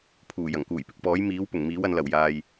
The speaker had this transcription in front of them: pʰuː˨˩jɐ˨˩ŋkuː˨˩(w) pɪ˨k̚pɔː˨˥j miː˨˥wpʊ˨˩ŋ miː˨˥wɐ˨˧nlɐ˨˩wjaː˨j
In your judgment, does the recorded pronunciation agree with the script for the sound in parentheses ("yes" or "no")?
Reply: no